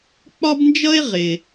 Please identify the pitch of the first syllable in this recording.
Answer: high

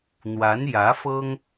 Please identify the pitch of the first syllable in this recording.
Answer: rising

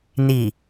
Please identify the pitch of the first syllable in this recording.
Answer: low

